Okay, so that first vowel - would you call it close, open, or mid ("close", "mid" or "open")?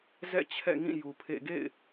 mid